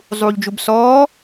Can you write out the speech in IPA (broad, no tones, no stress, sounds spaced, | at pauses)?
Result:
zˤ uː ʎ d͡ʒ u b s ɔː